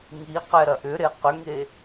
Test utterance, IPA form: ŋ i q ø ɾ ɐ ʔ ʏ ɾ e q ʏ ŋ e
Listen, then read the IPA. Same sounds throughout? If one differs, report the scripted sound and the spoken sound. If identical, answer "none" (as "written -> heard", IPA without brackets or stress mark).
ø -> ɛ